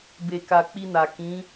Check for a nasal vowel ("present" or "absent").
present